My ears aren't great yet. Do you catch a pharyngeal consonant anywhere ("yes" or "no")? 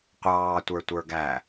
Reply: no